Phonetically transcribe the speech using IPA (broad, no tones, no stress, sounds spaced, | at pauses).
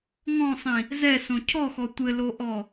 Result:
ŋ ɔ̃ sˤ ĩ | z ɛ s õ cʰ ɔ x ɔ tʷ ɘ l o ʔ ɔ